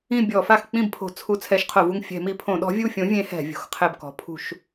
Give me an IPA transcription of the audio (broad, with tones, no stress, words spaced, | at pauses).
ĩ˦˨bʲɔ˧˩˧fa˦˨x k͡pĩ˦˨bpʰo̤˧˩˧t͡sʰu˧˩˧ t͡sʰɛ˨˥ʃqʰo˧˩˧vu˦˨ŋ fʲɛ̤˧˩˧mi˧˩˧pʰõ˧˩˧ɗɔ̤˨˥ vʲu˦˨fʲõ˨˥vʲẽ˨˥ hɛ̤˧˩˧vʲo̤˨˥xqʰɛ˦˨bkɔ̤˨˥ pʰṳ˧˩˧ʃ